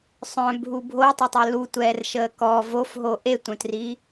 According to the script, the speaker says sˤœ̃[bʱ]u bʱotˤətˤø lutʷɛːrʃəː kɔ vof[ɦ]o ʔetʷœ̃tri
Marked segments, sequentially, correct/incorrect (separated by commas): correct, correct